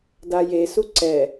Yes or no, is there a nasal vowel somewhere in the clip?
no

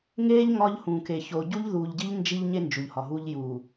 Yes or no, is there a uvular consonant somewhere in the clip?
no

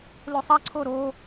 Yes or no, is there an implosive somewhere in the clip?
no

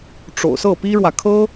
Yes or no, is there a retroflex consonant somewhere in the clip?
yes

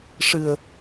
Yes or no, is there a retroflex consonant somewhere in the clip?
yes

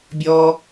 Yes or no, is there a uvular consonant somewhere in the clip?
no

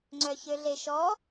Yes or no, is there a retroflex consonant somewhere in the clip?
no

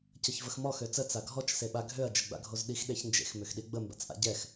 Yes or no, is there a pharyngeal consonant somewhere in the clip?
no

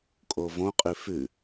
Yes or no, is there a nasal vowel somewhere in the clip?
yes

